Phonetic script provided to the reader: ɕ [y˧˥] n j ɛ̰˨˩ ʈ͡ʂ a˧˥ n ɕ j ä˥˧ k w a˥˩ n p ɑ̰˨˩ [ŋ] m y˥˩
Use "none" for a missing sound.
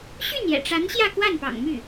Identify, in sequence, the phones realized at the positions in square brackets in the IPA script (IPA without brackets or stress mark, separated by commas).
y˥˩, ŋ